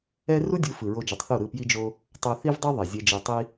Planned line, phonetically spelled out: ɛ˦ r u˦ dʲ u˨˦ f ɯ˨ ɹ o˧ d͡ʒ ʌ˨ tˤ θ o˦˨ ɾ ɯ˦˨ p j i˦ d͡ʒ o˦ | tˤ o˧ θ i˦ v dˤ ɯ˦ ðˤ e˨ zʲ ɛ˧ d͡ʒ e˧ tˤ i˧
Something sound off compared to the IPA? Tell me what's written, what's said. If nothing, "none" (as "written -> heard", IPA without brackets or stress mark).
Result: none